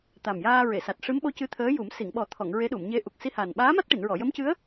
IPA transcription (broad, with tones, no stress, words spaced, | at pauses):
t̪a˨˩mjaː˧ɹe˨˩˨sa˨˩t̚ ʂɨ˧˥mɓo˧˥ cɨ˧˥t̪ʰəː˧˥ju˨˩˦m si˨˩˨ŋɓɔ˨˩˦t̪ʰɔ˨˩˨ŋ ɹe˧˥ɗu˨˩˨mɲe˧˥ʔu˨˩k̚ si˧haː˨˩n ɓaː˧˥ma˦˥t̚ʈi˨˩˨nɹɔ˨˩˨ jə˧˥mcɨ˧˥ə̯